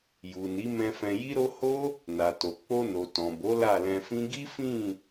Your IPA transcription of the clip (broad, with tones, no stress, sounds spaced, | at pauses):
j u˨ n i˨˦ m ɛ̃˧ f ɛ̃˧ j i˦ ɾ o˦ h o˦ | n a˨ t o˨ k͡p o˧ n o˨ t ɔ̃˨ b o˨˦ l a˦˨ l ɛ̃˧ f ĩ˦ ɡ i˦ f ĩ˦˨